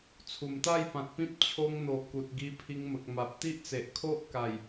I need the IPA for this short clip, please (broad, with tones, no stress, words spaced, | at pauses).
t͡sʰu˨˩mt̪a˥˧jpã˨t̚pĩ˦p̚ t͡ɕʰo˧ŋn̪o˨˩ ku˨t̚ɡi˧pʰi˧ŋmə˨k̚ ma˨p̚t̪i˦ʔt͡se˨ʔ kʰo˦ʔka˨˩j